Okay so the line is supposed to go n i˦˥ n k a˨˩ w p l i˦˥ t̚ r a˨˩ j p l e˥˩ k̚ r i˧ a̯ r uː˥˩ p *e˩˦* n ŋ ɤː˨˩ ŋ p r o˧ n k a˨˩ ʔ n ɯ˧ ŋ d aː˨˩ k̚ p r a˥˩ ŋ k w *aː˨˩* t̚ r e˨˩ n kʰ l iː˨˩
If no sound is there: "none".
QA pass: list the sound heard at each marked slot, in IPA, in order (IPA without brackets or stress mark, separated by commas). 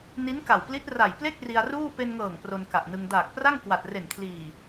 e˧, a˨˩